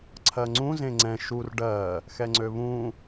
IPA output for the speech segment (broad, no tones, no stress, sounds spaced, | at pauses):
ǀʰ ɜ ŋ͡ǀ ũ z ẽ ŋ͡ǀ ɛ̃ ʃ u r ɖ ɜ | x ɛ ŋ͡ǀ ø β ũ